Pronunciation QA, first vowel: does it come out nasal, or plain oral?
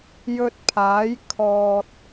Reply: oral